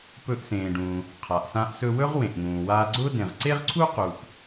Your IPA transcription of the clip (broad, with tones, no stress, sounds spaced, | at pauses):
p ɵ˧ ʔ s ẽː˩ ɖ ũː˩ | qʰ a˩ ʔ s ã˧ ʔ s ɵ˧ w ɵ˥ ʁ w ẽ˩ ʔ ŋ ũː˩ w aː˧ ɡ͡ǀ ʊː˥ d ẽ˩ ʁ ǀ e˥ ʁ ǀʰ u˥ q u˩ ʔ